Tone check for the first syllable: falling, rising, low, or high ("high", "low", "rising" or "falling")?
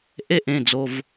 high